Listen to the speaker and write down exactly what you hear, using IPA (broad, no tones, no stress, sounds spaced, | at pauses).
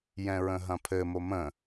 j ɛ̃ ɹ ə̃ ɦ ɐ̃ pʰ ɘ m o m ə̃